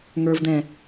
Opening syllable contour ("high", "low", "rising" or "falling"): low